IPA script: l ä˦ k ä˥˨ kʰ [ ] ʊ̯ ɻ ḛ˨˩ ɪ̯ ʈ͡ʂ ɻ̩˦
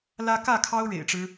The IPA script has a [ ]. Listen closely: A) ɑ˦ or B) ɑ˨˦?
A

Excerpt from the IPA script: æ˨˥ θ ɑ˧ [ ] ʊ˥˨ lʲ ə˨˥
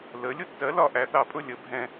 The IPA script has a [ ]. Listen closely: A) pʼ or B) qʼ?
A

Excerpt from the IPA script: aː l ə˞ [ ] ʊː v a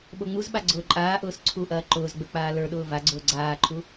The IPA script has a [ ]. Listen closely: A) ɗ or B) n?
A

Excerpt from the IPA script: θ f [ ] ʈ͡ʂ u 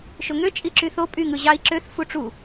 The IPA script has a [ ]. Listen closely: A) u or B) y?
A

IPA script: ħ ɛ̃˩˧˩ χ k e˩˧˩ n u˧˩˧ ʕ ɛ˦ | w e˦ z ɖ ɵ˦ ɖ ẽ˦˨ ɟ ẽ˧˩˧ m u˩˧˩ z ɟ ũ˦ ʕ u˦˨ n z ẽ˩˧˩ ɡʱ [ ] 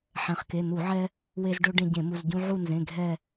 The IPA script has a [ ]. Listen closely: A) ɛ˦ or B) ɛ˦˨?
B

